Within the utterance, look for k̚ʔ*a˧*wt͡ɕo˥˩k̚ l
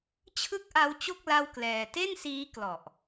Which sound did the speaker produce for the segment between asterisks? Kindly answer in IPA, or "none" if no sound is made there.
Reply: a˦˥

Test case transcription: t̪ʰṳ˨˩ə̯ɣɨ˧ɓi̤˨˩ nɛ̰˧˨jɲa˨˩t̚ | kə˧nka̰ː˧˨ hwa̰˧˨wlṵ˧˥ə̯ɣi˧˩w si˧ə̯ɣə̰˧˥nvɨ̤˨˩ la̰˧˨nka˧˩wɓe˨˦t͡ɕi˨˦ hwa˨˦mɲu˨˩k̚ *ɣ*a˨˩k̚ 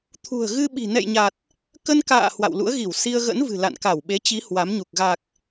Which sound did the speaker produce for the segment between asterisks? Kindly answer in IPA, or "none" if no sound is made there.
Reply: ɣ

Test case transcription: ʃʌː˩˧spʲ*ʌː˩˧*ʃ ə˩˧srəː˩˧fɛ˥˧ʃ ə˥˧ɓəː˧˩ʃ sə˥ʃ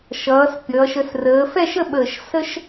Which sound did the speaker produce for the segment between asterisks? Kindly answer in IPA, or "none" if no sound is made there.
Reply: ʌː˩˧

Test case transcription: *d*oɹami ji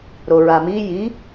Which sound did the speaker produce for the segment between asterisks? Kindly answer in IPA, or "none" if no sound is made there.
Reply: ɾ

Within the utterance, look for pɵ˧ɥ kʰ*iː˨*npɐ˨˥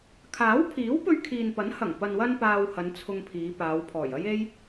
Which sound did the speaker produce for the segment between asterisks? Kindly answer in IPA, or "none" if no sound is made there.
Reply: iː˨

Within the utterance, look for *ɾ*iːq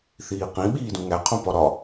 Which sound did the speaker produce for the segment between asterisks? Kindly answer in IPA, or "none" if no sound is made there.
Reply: θ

